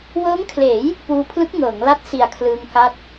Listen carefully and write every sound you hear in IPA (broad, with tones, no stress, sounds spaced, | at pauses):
w ɤː˦˥ ŋ kʰ l eː˩˦ j | p uː˧ pʰ l ɯ˦˥ k̚ ŋ ɤː˩˦ ŋ l a˦˥ t̚ s i˨˩ a̯ kʰ l ɯː˧ ŋ k a˦˥ t̚